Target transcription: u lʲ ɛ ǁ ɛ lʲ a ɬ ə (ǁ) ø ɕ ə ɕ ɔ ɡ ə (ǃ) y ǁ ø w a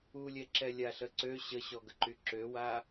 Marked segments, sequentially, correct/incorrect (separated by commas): incorrect, correct